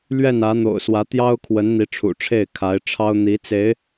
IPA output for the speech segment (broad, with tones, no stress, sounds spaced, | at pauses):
l ɥ ɛ˥˩ n ä˧˥ n̪ o̰˨˩ ʊ̯ s w ä˧˥ t̪ j ɑ˥ ʊ̯ kʰ w ə˧˥ n n̪ i˧˥ ʈ͡ʂʰ ṵ˨˩ ʈ͡ʂʰ e˥˩ ɪ̯ kʰ a˧˥ ɪ̯ ʈ͡ʂʰ ɑ˥ ʊ̯ n̪ i˧˥ t͡s e˧˥ ɪ̯